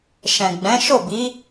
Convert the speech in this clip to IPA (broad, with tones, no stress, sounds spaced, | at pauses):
ʃ ɛ̃˨ ɡ͡b ɛ̃˨˦ ʃ o˦˨ b i˨˦